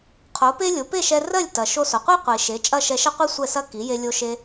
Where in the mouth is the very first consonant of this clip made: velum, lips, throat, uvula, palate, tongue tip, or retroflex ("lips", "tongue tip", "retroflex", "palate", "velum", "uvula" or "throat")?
uvula